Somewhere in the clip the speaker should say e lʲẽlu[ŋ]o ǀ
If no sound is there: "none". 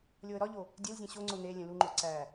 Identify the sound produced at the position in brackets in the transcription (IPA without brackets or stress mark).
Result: ŋ͡ǃ